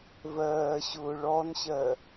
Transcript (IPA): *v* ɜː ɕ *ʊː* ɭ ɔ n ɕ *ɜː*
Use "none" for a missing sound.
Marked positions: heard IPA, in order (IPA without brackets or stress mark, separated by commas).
v, ʊː, ɜ